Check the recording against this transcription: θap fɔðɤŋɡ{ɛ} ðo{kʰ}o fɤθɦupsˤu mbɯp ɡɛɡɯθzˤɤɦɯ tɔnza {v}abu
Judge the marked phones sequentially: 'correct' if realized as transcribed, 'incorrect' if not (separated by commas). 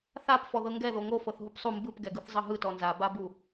correct, incorrect, incorrect